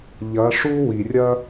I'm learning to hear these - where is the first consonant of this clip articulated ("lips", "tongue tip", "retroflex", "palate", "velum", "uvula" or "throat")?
palate